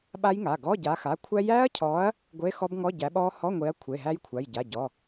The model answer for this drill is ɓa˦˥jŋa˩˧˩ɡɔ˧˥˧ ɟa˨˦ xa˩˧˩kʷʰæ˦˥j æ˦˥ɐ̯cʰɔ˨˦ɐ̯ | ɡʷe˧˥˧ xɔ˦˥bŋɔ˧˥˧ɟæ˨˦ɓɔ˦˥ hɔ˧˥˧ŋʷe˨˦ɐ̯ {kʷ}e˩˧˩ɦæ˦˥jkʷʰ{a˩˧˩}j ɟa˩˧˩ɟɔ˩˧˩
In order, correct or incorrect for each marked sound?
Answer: incorrect, correct

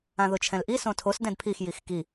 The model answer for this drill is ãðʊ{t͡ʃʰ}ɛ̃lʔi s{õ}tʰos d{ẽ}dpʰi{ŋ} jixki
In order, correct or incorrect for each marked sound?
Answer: correct, correct, incorrect, incorrect

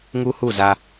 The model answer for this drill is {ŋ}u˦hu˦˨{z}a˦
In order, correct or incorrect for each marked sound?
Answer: correct, correct

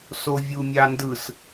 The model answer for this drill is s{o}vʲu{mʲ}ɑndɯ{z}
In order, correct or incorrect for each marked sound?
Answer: correct, correct, incorrect

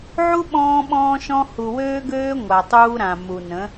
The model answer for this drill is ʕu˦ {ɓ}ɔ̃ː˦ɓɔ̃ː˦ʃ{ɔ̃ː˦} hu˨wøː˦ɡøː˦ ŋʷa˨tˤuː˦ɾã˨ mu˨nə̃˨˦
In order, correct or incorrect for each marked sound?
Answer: correct, incorrect

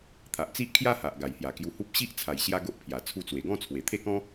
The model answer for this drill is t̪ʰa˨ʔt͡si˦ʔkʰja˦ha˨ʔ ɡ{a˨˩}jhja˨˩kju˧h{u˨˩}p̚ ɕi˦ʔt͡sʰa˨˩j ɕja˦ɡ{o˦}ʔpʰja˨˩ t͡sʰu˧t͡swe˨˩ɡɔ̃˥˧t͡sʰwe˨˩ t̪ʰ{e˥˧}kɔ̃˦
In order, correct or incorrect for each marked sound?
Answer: correct, incorrect, correct, correct

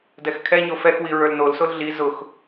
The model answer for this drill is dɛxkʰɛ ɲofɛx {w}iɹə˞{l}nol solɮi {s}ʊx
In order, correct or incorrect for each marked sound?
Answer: correct, correct, incorrect

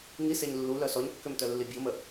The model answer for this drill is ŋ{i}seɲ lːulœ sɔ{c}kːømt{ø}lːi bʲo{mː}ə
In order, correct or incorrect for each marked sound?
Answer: correct, incorrect, incorrect, incorrect

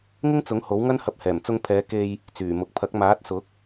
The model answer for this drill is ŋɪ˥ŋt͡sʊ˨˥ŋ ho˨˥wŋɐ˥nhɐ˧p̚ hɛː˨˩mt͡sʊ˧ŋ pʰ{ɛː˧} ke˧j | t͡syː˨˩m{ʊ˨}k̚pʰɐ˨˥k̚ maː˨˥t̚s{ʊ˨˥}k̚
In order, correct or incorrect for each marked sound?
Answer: incorrect, correct, correct

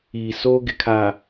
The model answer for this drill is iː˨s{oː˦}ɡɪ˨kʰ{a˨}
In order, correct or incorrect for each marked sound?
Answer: correct, correct

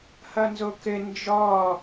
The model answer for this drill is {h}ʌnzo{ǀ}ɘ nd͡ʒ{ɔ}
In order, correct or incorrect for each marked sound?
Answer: correct, incorrect, correct

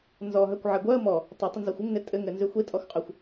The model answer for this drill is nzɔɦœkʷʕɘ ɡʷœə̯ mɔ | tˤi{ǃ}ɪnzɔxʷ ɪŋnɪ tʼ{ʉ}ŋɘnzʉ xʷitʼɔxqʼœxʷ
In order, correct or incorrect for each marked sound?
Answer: incorrect, incorrect

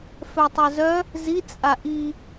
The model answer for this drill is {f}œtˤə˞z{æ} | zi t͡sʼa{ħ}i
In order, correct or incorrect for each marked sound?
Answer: correct, incorrect, incorrect

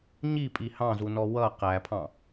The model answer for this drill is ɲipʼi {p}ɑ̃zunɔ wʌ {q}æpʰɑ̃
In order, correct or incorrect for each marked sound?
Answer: incorrect, correct

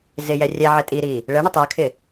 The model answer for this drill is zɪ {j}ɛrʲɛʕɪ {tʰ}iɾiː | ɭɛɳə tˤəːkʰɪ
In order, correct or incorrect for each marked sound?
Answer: correct, incorrect

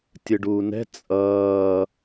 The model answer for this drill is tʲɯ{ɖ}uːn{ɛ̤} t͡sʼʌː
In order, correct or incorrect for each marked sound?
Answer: correct, correct

